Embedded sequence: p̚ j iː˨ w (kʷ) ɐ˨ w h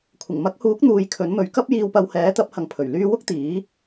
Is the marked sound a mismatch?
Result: yes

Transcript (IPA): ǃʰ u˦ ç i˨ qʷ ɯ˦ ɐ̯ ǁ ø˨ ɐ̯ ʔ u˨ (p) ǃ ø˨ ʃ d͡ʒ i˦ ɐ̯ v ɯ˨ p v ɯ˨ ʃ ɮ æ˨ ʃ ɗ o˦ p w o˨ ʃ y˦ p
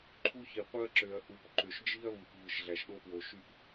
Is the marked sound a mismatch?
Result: no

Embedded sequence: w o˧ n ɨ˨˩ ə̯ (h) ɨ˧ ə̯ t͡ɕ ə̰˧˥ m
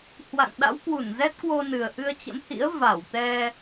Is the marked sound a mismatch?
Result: yes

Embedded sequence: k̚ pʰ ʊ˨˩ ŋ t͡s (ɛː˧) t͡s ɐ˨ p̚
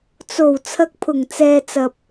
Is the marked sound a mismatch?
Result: yes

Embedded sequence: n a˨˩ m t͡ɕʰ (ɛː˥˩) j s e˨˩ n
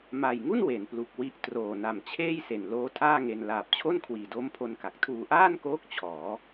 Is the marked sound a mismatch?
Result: yes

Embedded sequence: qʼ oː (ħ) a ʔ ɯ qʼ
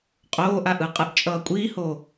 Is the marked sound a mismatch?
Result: yes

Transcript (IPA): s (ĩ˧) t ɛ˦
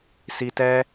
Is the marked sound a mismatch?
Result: yes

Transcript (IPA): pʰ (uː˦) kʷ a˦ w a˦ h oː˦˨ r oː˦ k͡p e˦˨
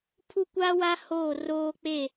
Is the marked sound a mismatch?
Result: yes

